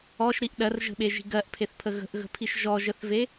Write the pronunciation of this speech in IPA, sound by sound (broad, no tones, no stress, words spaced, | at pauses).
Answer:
ɔʃɾiʔ ɗɜrʒə̤ɓeʒi̤ ɡɜʔpʰeθpʰə ɣə̤ʔɣə̤pʰiʃ ʒɔʒəθve